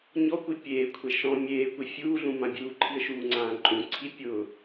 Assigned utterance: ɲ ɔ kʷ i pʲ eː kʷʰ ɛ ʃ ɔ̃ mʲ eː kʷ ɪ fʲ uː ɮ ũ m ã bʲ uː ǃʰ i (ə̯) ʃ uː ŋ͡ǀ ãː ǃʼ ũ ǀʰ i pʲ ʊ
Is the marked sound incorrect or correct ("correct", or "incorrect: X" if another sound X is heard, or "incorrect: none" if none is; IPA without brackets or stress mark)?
correct